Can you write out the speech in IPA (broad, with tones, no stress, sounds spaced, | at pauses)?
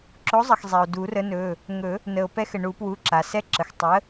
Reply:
ǁ o˨˥ zˤ ə˩ x zˤ ɛ˩ o̯ d u˨˩˦ r ə˨˥ n ɵ˩˧˩ | ŋ ɵ˨˩˦ | n ə˩ o̯ p ɛ˦ x ɘ˩ ɳ u˨˩˦ p w u˩˧˩ ǁ a˩ s ɛ˦ ǁ ə˩ x tˤ ə˨˥